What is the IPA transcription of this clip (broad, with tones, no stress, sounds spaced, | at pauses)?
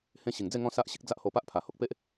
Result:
h ẽ˦ ɕ i˨˩ ŋ d͡z e˥˧ ŋ ɔ̃˦ s a˦ ʔ ɕ i˦ k̚ d͡z a˦ ʔ h o˧ p a˦ ʔ pʰ a˨˩ h o˦ k̚ p e˦ ʔ